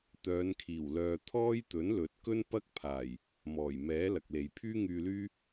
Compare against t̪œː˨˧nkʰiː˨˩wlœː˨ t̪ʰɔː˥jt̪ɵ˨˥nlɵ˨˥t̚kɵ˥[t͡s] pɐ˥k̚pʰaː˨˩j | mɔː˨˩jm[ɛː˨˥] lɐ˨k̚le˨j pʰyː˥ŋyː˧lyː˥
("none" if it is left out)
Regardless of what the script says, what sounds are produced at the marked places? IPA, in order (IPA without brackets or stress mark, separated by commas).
n, ɛː˨˥